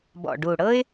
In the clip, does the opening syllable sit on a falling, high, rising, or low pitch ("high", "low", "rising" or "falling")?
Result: low